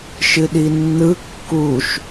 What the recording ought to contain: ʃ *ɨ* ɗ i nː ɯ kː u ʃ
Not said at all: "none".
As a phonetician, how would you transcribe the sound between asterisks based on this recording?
ɨ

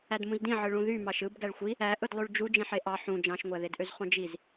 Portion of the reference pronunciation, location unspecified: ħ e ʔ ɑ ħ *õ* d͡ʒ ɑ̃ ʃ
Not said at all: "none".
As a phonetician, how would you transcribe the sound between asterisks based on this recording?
ũ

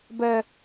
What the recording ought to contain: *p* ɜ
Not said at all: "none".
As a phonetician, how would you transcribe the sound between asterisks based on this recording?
b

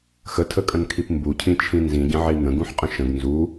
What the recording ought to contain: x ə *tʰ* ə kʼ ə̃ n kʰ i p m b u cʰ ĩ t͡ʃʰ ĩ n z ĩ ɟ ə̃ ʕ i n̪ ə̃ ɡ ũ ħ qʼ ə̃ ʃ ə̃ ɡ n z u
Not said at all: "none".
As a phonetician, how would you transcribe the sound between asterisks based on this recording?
tʰ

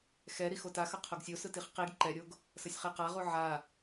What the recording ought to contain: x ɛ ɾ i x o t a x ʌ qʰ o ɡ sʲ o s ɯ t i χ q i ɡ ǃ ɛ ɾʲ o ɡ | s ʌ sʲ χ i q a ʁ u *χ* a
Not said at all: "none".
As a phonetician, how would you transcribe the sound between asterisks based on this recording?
ʕ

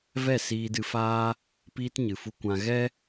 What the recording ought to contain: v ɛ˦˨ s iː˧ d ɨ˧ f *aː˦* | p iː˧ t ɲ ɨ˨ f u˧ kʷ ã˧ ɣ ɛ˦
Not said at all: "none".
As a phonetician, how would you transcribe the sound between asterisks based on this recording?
aː˦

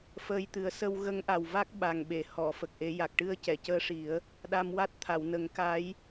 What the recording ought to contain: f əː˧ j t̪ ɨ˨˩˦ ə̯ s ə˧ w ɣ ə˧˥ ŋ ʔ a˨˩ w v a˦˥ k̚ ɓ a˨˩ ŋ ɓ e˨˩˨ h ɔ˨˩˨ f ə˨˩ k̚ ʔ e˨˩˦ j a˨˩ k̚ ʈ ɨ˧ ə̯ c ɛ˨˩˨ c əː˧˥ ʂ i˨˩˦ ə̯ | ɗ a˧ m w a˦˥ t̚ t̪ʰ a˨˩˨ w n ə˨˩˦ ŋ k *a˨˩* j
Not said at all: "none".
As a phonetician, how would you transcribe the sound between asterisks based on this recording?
a˧˥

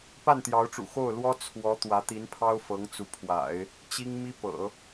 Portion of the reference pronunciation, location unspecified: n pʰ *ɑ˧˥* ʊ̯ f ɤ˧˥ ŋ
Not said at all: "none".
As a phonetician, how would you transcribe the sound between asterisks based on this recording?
ɑ˥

